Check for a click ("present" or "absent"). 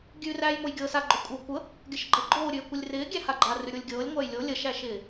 present